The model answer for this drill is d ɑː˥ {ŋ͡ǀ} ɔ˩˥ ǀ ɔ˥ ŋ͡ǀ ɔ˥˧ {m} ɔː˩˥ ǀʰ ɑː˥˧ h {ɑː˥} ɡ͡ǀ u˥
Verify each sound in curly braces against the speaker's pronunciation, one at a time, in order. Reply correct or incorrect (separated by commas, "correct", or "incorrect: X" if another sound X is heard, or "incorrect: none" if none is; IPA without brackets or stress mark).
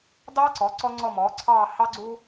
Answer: incorrect: ǀ, correct, incorrect: ɑ˥